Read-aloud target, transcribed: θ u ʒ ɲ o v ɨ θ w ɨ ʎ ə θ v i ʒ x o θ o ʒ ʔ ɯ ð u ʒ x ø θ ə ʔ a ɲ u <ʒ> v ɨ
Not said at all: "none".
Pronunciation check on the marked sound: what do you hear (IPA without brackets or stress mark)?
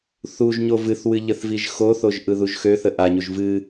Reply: ʒ